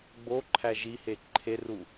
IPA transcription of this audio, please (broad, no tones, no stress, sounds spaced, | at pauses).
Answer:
ɡ͡b o ǃʰ æ ʒ i h e ǃʰ e r u